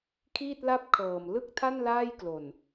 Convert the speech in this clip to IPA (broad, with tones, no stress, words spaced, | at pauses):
kʰiː˥˩t̚la˥˩p̚kʰɤː˨˩m lɯ˥˩k̚tʰa˥˩n laː˥˩jklo˨˩n